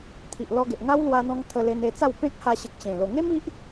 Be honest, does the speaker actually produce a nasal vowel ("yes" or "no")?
yes